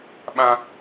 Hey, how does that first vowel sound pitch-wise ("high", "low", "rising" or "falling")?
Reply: high